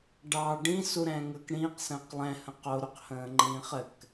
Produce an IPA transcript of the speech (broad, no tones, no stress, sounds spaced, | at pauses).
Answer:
ɖ ɑ ɖ ĩ s u ɾ ɛ̃ː ŋ əː k ɽ ĩː q s ə̃ː q lˠ ɛ̃ h ə̃ q o ɾ u q h ə̃ː ŋ͡ǃ ĩː χ ɘ k